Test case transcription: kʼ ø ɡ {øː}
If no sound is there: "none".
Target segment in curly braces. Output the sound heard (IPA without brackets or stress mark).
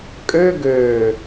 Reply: øː